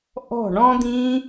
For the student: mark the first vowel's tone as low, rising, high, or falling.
falling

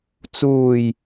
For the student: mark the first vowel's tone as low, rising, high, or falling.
low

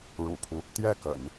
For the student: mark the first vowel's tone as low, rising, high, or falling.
low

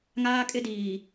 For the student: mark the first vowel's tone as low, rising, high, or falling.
high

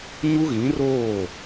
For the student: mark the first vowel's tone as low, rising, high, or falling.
high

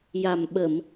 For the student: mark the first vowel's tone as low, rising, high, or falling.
low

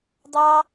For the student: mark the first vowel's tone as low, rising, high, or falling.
high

